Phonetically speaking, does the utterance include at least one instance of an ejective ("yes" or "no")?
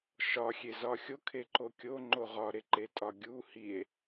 yes